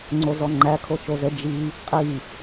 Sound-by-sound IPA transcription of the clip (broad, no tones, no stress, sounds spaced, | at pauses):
ŋ͡ǀ o z ɔ ŋ͡ǃ æ kʰ o t͡ʃ o z ə d͡ʒ i | qʼ i